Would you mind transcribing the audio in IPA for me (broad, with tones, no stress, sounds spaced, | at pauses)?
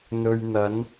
n̪ ɵ˧ ɥ n̪ ɐ˨˥ n